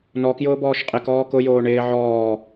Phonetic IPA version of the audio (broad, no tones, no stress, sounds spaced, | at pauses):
n ɔ k j ʊː b ɔː ʃ qʼ ɪ k ɔː k ʊ j oː ɳ ɪː ʕ ɔː